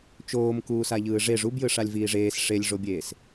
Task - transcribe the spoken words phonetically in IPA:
t͡ʃoːm kuːsaʎɯːʐe ʐubjɯʂalʲ viːʐeːs ʂelʲʐobʲeːs

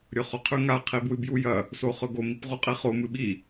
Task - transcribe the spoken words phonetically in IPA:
ɾʲɵχoqʰʉŋa qʰibwɨbjujɐ | soχɵɡo mipʁuqʼiχo mɨɓi

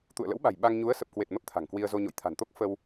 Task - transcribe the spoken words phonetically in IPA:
t̪ṵ˧˨ə̯lə̰˧˥wɓa̤˨˩j ɓa˧ŋ ɲu˨˦ə̯ sə˨˩p̚kwe˨˩t̚ mə˦˥p̚t̪ʰa̤˨˩ŋkwi˧ə̯zo˧ ɲo̰˧˨jt̪ʰa̤˨˩nt̪o˦˥k̚ fə˧w

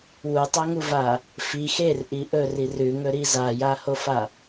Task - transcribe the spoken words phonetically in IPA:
wutˤaŋuva | fi xerʔi ʔɵri rʉŋɵɾi zajahofa

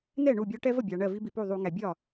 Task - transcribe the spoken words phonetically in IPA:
nɛ˥˩ ɳu˥˩bʲɔ˦ ʈɛ˦və˥˩bʲɑ˩ ɳɜ˥˩vi˦bi˩pu˥˩ ðˤu˧˩˧ŋæ˩ bʲɒ˥˩

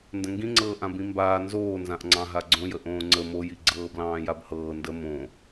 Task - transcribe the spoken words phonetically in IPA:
ndə̃ŋɡĩŋ͡ǀɤː ʔãbĩmbaː nzoːnzãʔŋ͡ǀɑ̃ ɦaɡ͡ǀõjə ʔõːŋ͡ǀə mojiɡ͡ǀɤːblɑ̃ː jabhɤː ndə mõ

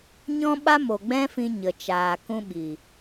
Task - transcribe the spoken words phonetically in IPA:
ɲɔ̃˦ɓa˦mo˨ ɡ͡bɛ̃˦fĩ˧ ɲə˨t͡ʃaː˨kũ˧ ɓi˨

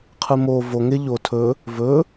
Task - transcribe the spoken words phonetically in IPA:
qʰɨmo vo ŋe ʎo tʰɵ | vɵ

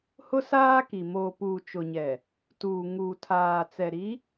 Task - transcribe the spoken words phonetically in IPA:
hʊ˦saː˦ki˨ moː˨puː˨t͡ʃʊ˨ɲɛ˨ | tuː˨ ŋuː˨tʰaː˨t͡sɛ˨ ɾi˨˦

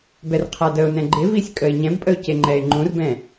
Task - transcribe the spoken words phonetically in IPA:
bɛrqʰadəʊ̯nɛ̃ ɡ͡ǃɪ visʲkʼəɪ̯ɲɛ̃bpʼəʊ̯ ceŋ͡ǃɛɪ̯ŋ͡ǃũrbɛ̃

